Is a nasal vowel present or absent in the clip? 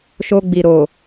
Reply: absent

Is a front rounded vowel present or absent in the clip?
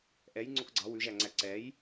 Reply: absent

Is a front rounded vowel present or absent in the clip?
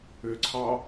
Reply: present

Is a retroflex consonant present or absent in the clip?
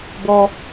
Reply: absent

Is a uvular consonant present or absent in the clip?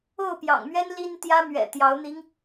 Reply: absent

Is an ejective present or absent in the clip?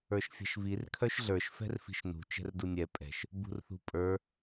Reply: present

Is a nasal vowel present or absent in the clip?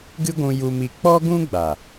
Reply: present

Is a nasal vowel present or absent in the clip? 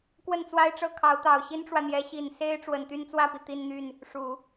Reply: absent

